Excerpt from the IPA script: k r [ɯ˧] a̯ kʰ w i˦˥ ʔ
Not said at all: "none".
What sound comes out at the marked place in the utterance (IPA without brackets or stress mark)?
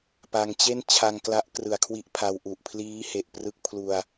ɯ˨˩